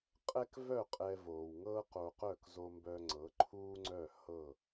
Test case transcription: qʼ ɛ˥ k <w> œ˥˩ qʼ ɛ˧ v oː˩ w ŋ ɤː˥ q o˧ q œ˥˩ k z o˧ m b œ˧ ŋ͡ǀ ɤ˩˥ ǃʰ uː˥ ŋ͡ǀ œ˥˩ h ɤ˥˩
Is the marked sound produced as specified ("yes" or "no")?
no